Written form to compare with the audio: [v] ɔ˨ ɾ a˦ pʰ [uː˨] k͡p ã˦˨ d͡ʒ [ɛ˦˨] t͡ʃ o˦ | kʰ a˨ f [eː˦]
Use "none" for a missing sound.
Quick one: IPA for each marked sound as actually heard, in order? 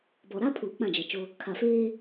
b, uː˨, ɛ˨, eː˦

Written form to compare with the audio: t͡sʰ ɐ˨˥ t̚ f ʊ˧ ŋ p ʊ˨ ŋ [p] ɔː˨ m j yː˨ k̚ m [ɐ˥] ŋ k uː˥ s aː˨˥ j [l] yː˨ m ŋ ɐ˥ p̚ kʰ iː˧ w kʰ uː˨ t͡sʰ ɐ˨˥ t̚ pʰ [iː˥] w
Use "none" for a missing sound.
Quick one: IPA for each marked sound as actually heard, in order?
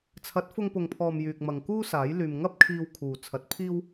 pʰ, ɐ˨, l, iː˥

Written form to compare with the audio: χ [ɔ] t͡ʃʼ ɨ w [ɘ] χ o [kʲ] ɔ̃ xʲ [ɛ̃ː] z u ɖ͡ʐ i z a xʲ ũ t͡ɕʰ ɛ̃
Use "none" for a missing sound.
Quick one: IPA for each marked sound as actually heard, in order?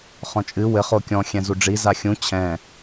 ɔ̃, ɘ, kʲ, ɛ̃

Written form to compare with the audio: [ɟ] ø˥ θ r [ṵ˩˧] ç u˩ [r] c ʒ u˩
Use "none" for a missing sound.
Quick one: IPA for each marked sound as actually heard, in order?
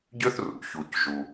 ɟ, ṵ˩˧, none

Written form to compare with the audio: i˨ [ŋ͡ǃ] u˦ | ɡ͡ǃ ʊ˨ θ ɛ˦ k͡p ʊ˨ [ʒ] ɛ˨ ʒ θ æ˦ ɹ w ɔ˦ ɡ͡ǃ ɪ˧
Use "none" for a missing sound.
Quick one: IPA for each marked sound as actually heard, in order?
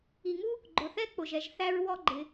ŋ, ʒ

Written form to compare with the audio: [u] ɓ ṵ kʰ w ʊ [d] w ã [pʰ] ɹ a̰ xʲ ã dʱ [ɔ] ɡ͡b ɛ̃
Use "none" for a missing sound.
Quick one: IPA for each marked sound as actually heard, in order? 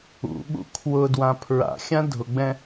ṵ, d, pʰ, ʊ

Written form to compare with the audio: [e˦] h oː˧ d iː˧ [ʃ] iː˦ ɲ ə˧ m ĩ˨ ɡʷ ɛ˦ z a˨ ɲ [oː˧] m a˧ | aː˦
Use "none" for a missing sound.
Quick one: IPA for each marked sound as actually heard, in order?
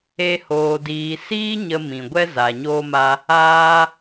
e˦, s, oː˧

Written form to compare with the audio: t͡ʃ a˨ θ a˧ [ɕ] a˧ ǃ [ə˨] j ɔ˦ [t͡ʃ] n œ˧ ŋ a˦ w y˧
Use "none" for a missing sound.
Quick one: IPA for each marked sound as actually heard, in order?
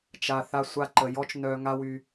sʷ, ə˨, t͡ʃ

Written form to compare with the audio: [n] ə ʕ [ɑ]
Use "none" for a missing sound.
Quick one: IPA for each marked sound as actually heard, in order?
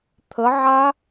t̪ʰ, a

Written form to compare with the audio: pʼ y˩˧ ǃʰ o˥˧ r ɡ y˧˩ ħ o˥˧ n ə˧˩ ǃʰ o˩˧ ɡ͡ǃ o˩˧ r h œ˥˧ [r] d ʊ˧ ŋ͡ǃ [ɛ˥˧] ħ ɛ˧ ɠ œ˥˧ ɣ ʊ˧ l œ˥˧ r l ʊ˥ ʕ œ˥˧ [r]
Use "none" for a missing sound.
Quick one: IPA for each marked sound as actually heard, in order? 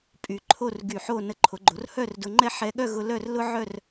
r, ɛ˥˧, r

